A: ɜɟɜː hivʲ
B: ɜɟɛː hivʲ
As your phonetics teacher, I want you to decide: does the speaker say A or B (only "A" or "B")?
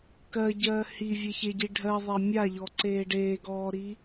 A